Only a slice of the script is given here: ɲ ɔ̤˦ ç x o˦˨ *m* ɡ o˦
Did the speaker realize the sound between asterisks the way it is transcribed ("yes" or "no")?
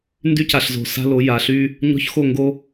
no